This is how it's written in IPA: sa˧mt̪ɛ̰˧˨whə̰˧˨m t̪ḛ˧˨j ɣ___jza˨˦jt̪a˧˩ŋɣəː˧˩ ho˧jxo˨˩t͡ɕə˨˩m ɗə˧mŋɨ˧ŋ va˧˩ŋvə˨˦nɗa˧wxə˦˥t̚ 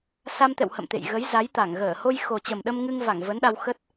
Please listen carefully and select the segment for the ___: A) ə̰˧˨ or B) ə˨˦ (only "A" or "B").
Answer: B